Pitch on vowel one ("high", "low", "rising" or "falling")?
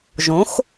rising